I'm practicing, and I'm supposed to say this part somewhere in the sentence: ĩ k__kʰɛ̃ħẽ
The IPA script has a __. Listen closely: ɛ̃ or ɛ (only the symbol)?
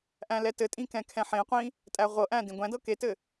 ɛ̃